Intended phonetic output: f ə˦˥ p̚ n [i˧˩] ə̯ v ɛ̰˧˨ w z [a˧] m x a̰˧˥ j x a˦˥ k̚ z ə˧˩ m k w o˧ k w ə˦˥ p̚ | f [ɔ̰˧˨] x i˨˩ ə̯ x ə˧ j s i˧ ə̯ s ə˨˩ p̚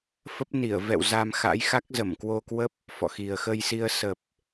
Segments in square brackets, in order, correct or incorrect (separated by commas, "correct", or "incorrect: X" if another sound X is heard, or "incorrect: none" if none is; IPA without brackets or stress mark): correct, correct, correct